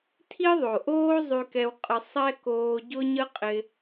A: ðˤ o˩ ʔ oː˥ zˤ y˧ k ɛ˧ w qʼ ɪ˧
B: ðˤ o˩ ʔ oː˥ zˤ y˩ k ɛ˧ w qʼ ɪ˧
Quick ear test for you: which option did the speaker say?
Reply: A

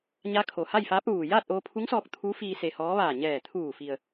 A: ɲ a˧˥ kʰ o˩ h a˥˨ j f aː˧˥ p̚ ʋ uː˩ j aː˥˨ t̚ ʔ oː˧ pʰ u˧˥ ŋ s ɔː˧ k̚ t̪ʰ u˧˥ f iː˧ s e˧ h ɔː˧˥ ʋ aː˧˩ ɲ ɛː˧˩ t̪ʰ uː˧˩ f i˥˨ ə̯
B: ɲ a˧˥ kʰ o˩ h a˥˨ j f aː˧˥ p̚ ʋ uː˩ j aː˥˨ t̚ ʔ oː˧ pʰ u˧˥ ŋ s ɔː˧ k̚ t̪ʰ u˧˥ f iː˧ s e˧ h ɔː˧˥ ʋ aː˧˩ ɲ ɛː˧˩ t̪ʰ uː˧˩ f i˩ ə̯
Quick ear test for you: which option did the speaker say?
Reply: B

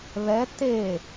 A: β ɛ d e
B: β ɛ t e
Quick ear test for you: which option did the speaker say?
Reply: B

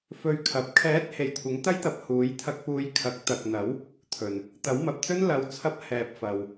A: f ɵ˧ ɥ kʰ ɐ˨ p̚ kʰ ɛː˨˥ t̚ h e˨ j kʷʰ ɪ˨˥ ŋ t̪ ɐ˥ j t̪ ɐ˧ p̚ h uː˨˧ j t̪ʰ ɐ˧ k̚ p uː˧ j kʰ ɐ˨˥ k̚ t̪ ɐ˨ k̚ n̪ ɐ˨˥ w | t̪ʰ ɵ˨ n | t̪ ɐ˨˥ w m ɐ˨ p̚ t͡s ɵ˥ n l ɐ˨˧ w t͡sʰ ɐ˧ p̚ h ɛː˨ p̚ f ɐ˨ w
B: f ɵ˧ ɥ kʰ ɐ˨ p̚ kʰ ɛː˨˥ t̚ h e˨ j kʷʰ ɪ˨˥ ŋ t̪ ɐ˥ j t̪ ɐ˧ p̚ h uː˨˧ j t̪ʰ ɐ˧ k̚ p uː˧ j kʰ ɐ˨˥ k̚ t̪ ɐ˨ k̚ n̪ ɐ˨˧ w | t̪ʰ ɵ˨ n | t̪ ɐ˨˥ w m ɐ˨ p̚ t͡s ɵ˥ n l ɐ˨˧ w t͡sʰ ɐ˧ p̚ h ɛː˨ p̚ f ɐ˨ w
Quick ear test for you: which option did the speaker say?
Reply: A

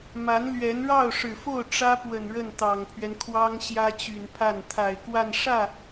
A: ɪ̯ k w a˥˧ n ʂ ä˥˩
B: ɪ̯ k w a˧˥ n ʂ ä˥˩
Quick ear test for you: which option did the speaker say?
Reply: A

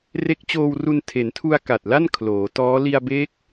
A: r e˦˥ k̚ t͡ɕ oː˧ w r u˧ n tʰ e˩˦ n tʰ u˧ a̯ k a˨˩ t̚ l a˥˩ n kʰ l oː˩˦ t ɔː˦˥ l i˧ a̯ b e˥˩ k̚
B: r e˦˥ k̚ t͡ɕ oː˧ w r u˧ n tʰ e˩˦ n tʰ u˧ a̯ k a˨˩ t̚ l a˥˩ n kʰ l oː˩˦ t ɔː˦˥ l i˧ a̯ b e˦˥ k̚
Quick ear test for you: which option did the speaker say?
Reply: B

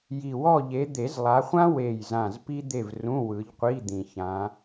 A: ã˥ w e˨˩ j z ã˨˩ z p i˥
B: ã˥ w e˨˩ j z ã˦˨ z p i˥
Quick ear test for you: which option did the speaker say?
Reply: A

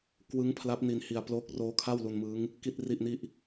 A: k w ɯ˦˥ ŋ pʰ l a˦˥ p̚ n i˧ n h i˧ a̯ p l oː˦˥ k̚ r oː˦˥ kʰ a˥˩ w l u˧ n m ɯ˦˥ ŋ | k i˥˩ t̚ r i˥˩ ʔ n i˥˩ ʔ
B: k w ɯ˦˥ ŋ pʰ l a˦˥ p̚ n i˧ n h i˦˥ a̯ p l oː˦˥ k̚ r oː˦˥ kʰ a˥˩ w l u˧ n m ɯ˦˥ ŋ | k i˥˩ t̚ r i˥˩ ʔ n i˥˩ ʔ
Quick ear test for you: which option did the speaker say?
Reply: A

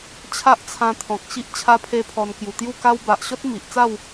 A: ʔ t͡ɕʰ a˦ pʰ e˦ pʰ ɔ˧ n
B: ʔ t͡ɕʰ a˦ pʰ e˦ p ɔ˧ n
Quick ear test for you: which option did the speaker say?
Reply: A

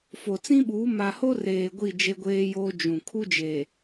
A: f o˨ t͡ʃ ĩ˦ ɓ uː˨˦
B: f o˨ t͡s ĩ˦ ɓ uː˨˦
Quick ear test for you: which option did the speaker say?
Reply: B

